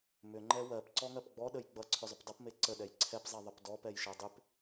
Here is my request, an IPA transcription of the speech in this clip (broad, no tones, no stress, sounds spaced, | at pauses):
m ʏ ŋ͡ǃ ɛ w ɜ p ǀ ɔ ŋ ɜ p ɡ͡b ɔ ɗ ə j ɡ͡b ʌ ǀʰ ʏ zˤ ʏ p dˤ ʌ p m e ǀ ə ɗ ɛ j ǀʰ ɛ p zˤ e ðˤ ə p d ɔ p ɛ j ʃ ɛ dˤ ʏ p